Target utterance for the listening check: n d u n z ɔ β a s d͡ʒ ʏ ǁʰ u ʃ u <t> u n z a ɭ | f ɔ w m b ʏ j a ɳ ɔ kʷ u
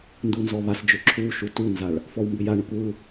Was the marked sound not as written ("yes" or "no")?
no